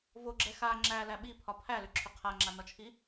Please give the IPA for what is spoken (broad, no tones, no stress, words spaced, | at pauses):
voɡ͡ǁɛ xa ŋ͡ǁælæ ɓipʰɒ pʰælʏǁʰʏ qʰaŋ͡ǁanɒt͡ʃʰi